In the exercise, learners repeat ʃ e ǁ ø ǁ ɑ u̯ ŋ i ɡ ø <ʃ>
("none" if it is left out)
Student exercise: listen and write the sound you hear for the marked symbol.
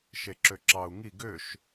ʃ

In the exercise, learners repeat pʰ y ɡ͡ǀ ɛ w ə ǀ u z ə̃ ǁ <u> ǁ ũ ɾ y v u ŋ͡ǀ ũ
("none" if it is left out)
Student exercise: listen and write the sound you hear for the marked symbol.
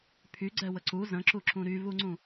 u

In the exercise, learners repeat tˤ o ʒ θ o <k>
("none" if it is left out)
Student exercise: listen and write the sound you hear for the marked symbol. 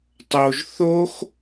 x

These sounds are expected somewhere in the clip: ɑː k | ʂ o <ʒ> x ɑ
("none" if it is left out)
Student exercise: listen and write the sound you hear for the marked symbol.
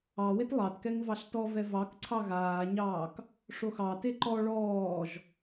none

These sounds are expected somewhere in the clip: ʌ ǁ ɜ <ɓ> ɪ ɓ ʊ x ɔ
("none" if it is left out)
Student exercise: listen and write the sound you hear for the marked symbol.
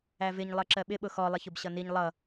ɓ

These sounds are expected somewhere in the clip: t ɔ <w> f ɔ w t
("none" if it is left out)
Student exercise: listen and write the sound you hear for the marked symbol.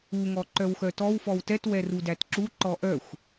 w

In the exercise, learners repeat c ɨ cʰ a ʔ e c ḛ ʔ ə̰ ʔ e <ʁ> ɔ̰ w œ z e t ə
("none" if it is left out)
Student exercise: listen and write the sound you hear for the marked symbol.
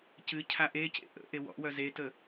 w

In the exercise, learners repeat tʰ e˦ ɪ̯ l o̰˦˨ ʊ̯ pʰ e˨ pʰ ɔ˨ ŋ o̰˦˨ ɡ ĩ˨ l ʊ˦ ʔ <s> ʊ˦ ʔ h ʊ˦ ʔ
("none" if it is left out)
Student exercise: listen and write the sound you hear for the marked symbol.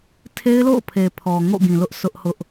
s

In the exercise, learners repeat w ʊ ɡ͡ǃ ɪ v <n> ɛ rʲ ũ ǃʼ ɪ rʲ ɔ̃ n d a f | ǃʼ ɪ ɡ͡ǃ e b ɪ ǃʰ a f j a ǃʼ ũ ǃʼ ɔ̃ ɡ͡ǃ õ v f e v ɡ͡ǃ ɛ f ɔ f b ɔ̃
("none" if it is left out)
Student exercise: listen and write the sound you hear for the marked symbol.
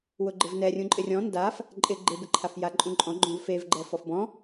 n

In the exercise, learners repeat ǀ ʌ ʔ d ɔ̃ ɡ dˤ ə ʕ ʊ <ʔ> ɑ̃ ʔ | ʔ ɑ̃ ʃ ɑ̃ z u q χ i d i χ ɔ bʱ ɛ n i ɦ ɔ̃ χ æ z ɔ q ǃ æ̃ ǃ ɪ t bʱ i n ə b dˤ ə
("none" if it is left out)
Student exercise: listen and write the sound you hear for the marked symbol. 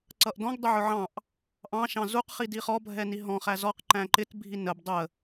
ʕ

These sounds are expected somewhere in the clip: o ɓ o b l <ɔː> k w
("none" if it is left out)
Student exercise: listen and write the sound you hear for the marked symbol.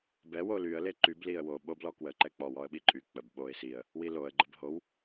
ɔ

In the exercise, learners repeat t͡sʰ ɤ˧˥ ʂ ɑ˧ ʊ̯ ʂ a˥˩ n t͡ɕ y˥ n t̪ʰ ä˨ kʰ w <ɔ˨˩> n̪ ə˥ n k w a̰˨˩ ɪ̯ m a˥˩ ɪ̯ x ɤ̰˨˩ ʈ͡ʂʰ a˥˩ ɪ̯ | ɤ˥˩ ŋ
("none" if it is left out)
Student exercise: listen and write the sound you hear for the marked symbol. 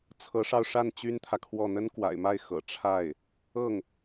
ɔ˥˩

